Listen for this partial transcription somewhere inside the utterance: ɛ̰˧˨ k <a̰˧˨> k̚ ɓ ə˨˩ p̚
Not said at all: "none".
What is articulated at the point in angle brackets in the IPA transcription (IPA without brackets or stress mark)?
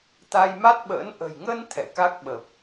a˦˥